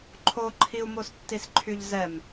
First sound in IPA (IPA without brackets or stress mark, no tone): ǃʰ